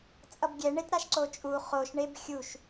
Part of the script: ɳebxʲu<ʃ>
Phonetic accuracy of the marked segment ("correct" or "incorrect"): correct